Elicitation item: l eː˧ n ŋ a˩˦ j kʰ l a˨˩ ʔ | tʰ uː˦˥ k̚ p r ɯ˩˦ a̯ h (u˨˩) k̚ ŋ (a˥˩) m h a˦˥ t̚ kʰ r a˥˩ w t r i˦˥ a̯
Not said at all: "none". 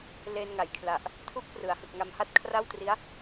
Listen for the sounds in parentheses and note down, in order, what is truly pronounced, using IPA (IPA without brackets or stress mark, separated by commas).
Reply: ɯ˨˩, a˧